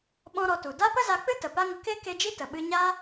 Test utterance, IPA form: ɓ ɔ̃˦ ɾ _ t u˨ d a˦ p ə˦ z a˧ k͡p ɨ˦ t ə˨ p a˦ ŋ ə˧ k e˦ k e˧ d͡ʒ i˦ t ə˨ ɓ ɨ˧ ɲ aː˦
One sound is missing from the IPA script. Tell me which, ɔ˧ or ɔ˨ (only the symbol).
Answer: ɔ˧